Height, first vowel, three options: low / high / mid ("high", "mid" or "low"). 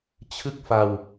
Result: high